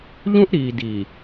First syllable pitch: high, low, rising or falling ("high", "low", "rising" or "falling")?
high